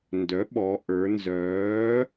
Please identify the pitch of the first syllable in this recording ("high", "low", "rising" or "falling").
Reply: rising